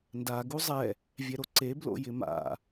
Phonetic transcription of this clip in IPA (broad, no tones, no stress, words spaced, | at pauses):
nda ɡuzˤɛ | vʲɛɾoǀe blo̰jɪma̰